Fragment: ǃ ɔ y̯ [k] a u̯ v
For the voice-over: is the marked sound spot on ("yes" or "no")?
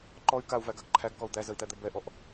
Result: yes